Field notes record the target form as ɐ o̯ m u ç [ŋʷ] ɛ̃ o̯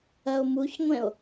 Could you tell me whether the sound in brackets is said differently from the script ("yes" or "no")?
no